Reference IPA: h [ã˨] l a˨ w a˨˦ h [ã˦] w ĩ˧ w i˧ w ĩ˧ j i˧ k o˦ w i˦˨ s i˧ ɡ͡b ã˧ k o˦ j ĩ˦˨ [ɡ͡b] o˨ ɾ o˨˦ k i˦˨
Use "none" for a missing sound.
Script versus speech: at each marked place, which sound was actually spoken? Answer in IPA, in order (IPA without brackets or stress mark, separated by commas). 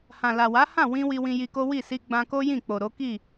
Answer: ã˨, ã˦˨, k͡p